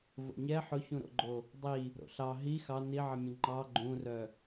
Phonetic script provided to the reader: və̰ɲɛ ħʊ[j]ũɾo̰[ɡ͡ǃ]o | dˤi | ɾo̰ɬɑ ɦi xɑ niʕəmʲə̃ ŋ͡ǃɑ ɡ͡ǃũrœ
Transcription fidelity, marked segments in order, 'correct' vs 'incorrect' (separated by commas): incorrect, correct